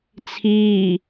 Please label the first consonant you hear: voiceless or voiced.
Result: voiceless